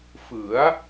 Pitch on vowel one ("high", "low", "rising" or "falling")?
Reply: rising